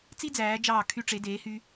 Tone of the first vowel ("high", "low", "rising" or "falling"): high